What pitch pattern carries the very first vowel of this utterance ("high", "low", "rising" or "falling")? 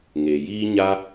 low